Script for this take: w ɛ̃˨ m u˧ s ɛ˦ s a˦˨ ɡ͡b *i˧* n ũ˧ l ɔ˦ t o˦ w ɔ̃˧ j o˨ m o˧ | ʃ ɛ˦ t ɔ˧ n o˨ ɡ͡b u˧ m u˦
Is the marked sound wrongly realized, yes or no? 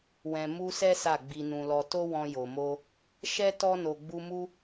no